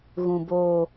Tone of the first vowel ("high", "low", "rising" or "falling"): high